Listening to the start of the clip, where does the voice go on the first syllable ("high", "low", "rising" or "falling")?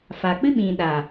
low